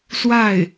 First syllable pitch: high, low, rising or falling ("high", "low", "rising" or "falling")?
falling